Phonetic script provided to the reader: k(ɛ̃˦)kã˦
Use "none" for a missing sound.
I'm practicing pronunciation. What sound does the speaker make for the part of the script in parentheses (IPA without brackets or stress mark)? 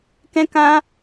ɛ̃˦